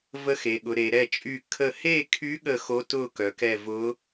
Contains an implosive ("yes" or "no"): yes